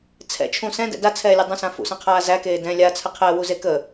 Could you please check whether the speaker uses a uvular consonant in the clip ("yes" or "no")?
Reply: yes